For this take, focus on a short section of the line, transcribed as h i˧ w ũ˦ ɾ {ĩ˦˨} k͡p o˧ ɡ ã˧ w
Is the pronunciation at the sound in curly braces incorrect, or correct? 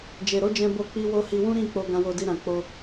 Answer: correct